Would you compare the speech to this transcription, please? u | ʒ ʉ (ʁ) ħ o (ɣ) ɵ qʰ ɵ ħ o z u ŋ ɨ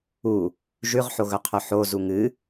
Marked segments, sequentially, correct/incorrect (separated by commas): correct, correct